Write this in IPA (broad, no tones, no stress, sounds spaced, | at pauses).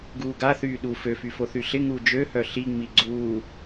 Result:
ɡ uː ɡ a θ yː ɗ u f ø f y f o θ y ɬ ɪ ŋ uː d͡ʒ ø h œ ɬ i ŋ͡m i ɡ͡ǀ uː